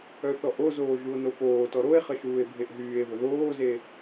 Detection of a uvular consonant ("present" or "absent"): present